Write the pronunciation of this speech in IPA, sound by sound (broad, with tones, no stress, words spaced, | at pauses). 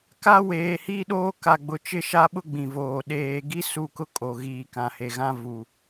ka˦weː˨hiː˦ɗoː˦ ka˨ɡ͡bʊ˨ t͡ʃɪ˦ʃa˦ɓʊ˦ ɡ͡bĩ˨voː˨ ɗeː˨ɡi˦ su˦˨kʊ˦kʼo˨ ɣiː˨ kã˨he˨ ɣã˦vu˨